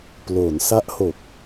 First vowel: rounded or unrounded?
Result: rounded